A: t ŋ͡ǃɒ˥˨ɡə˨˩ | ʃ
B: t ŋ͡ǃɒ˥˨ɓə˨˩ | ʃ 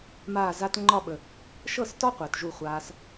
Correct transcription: B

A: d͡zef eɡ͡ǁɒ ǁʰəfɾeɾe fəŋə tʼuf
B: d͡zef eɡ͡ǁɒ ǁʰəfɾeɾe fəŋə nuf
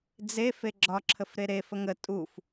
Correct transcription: A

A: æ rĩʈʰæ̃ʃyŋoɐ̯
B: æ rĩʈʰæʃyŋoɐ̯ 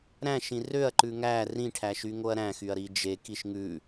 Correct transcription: B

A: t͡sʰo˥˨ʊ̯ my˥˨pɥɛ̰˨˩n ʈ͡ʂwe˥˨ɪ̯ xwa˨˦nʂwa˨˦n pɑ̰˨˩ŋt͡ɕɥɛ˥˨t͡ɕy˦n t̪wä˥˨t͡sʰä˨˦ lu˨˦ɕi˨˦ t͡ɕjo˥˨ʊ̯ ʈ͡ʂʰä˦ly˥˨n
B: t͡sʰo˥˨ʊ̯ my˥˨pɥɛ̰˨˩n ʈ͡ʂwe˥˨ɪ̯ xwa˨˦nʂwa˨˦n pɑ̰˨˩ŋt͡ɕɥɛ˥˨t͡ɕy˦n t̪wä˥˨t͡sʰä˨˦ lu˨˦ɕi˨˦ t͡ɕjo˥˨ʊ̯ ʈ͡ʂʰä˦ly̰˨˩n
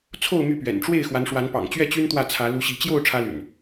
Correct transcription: B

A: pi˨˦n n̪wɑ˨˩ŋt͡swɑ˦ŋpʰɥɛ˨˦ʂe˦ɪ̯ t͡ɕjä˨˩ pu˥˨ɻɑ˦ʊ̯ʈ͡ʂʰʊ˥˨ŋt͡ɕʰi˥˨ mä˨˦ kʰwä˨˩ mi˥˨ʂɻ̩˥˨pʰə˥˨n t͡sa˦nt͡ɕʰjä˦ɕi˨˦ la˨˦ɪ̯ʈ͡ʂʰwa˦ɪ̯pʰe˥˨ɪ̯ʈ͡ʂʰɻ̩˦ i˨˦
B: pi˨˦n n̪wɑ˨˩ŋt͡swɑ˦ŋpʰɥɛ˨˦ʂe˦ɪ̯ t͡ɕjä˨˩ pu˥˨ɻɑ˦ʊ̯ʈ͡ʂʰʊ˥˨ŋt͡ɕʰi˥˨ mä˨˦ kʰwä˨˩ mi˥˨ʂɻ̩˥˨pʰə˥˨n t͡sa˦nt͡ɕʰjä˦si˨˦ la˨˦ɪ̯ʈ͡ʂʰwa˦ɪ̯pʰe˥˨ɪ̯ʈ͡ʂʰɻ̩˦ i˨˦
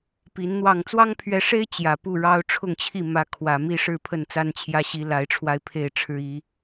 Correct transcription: A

